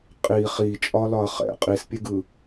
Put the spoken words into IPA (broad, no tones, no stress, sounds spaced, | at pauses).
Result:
qʼ i χ i t͡ʃʼ ɒ l ɒ ɐ̯ χ ɛ̰ qʼ i s pʲ e ɡ ɯ